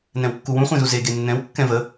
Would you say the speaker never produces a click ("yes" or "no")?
yes